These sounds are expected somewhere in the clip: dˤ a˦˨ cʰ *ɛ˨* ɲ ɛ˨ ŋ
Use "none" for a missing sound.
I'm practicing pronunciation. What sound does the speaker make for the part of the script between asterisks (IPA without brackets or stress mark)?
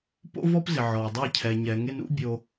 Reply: ɛ˨